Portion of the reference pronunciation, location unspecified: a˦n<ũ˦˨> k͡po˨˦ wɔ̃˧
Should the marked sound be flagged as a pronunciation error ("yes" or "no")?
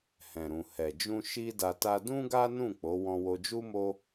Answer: no